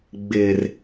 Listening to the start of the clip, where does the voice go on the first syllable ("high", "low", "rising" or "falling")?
low